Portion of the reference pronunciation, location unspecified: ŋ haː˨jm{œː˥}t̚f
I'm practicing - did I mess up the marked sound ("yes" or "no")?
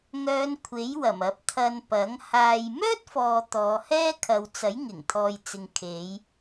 no